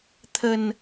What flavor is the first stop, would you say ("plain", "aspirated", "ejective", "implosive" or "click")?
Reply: aspirated